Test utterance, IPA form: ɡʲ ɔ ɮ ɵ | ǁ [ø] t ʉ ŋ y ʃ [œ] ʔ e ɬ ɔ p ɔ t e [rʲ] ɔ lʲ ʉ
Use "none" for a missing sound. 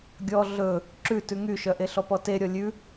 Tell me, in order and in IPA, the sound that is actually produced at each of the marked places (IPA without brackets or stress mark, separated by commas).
ʉ, œ, ɾʲ